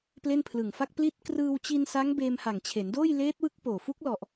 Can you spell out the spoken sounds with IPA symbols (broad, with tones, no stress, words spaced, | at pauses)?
ple˥˩npʰlɯ˨˩ŋfa˥˩k̚ pli˦˥t̚ krɯː˧wt͡ɕi˧nsa˦˥ŋ beː˧mha˨˩ŋt͡ɕʰe˩˦ndoː˥˩j leː˦˥t̚ wɯ˦˥k̚poː˨˩fu˦˥k̚ lɔ˨˩ʔ